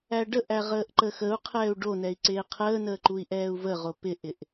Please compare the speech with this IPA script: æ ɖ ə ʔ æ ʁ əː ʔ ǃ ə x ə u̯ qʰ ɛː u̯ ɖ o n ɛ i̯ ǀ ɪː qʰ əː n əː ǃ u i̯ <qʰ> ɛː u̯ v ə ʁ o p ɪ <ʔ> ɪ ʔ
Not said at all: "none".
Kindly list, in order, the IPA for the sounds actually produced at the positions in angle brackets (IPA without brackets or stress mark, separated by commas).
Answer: ʔ, ʔ